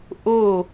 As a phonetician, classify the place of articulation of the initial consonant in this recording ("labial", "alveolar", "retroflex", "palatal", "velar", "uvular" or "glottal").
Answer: glottal